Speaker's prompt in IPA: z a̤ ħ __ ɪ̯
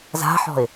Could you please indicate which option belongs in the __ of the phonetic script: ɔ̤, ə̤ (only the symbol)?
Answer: ɔ̤